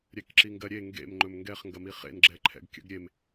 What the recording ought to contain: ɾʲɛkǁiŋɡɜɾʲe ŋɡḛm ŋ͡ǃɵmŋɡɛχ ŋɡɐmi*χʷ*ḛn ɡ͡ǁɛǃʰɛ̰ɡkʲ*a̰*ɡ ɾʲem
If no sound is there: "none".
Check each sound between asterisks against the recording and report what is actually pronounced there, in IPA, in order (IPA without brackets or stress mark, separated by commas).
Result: χ, ə̰